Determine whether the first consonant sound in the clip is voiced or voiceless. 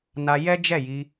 voiced